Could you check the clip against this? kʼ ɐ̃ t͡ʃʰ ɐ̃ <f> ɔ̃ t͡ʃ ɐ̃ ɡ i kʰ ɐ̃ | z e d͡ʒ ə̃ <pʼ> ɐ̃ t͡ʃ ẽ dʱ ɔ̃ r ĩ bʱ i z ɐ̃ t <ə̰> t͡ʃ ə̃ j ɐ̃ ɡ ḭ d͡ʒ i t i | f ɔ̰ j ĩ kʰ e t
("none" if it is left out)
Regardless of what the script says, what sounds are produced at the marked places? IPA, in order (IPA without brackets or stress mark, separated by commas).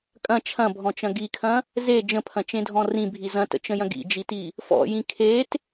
bʱ, pʰ, ə̰